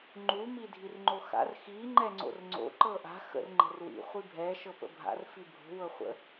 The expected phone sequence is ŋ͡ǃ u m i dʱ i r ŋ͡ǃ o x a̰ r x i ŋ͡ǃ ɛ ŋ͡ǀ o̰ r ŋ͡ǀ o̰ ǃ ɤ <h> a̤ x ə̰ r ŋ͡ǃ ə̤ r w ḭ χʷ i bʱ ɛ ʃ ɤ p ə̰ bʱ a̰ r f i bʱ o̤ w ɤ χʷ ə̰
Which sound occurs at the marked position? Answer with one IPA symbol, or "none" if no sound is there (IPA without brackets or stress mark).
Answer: ʔ